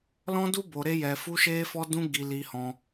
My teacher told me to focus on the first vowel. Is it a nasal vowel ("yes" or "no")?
yes